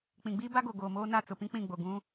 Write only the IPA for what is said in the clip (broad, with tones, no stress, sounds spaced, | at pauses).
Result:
k͡p ĩ˨ ɡ͡b iː˦ b a˦ ɡ o˨ ɡ oː˨ m oː˦ n a˦˨ t͡s ʊ˨ p ĩ˦ k͡p ĩ˦˨ ɡ͡b o˨ ɡ ũ˦